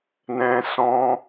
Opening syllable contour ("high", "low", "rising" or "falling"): high